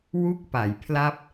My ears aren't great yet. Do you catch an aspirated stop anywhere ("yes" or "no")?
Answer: yes